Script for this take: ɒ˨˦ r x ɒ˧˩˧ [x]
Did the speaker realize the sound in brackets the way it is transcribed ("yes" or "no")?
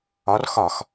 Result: yes